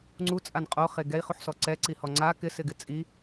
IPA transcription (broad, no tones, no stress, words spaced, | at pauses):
ŋ͡ǀut͡sʼan qʼoχe ɡɛi̯χuħsɔ ǀɛǀihɔ ŋ͡ǀa kɪsɪɡɪ t͡sʼi